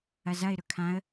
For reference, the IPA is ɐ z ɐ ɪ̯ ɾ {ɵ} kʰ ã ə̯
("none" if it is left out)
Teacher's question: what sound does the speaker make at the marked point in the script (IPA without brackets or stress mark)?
ɵ